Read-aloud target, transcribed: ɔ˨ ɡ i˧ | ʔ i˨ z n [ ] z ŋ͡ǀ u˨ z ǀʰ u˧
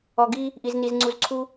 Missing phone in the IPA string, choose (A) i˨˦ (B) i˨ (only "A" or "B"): B